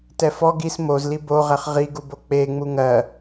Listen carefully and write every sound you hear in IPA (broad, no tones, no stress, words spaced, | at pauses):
tɛfɔɡ is mozli boʁɛχ ʁiɡubo k͡pe ŋ͡muŋɜ